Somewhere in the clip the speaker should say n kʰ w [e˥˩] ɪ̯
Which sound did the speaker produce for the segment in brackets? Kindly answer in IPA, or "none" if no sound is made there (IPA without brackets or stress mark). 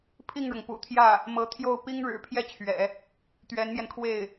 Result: e˥˩